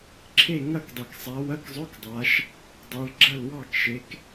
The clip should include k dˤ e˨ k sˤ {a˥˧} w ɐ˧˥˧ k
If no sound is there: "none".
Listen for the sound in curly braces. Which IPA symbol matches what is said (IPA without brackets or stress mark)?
a˨˦